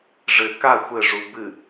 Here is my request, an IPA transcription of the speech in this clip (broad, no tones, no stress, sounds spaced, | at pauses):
ʐ ɘ k a xʷ ɘ ʐ u b ɨ